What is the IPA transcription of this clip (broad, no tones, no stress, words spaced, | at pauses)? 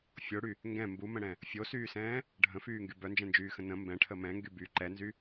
fʲoɽy | ŋɡɛ̃ mbumə̃ɽɛ̃ | fʲosyːsɛ̃ː | ɖʱə̃fyːŋɡy bœnd͡ʒɛ̃nd͡ʒyːxə̃ nə̃ mbɛ̃ʈʰə mɛ̃ŋɡy by ǃɛnzy